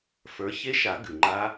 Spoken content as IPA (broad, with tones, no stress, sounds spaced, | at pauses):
f ə˞˨˦ ç e˦˥ ʃ a˨˩˦ ɡ ʉ˩ ŋ͡ǃ a˦˥